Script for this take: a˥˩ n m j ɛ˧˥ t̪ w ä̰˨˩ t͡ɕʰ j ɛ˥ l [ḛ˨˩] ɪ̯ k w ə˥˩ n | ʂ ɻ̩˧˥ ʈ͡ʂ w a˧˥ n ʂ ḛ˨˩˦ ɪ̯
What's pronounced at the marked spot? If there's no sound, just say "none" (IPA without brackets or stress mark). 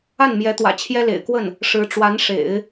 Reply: ḛ˨˩